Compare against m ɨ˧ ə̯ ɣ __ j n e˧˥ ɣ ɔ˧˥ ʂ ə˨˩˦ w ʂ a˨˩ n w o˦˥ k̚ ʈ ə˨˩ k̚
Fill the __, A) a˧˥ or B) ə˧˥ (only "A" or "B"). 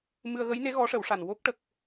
B